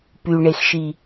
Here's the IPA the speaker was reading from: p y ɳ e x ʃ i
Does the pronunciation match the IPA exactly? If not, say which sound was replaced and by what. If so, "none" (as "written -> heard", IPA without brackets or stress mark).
none